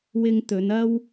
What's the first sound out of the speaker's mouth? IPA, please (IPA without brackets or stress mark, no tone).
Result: w